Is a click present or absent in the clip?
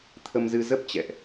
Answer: absent